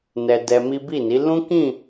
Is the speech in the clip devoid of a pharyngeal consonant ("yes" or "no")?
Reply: yes